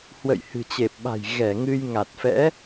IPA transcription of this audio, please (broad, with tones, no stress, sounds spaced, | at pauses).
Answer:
h w ə̰˧˨ j h ɨ̤˨˩ t͡ɕ e˨˩ p̚ ɓ a̤˨˩ j ɣ ɛ˧˩ ŋ ɨ˧ j ŋ a˨˩ t̚ f ɛ̰˧˥